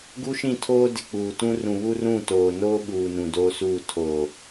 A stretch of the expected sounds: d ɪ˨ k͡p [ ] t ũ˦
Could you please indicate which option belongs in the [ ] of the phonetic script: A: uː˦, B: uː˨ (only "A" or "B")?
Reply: B